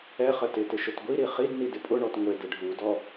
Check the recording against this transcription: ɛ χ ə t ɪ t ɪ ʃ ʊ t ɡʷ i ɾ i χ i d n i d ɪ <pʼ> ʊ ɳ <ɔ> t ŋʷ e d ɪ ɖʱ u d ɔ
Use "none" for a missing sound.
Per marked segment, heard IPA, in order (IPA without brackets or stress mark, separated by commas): pʼ, ɔ